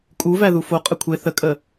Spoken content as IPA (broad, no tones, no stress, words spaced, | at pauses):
kʼuvæ ðufo qʼəkʷʰe θəkʼə